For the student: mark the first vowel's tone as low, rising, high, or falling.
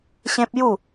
high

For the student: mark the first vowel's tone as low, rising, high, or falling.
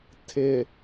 low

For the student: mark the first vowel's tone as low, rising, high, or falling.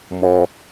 low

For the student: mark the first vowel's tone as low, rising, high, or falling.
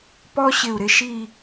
high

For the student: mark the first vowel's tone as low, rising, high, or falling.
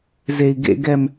high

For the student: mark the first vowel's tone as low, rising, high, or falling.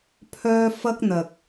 high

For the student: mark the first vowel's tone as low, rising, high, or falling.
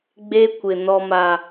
high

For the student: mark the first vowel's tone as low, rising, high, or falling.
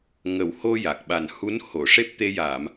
low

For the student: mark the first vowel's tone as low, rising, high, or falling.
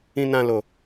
low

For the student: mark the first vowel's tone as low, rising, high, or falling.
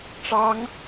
rising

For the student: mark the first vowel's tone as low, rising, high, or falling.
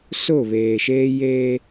falling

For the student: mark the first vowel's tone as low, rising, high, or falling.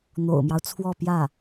low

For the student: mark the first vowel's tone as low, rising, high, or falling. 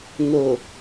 low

